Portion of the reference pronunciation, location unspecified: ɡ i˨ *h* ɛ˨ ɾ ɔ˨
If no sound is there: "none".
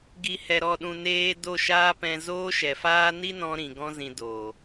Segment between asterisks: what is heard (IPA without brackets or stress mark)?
h